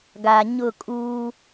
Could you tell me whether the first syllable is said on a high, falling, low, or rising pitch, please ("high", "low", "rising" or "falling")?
low